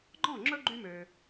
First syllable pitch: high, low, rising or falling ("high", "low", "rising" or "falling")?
falling